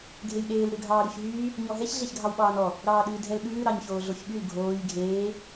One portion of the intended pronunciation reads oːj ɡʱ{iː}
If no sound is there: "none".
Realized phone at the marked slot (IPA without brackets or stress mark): eː